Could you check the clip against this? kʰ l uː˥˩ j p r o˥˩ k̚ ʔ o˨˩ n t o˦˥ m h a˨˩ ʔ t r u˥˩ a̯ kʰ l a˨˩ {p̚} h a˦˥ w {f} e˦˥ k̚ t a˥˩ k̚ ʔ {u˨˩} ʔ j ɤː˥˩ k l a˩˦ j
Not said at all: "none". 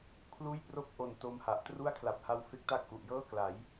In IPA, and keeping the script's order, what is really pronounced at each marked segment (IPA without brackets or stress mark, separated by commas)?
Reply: p̚, f, u˨˩